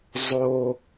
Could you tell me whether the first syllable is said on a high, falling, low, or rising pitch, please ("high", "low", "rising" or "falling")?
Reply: high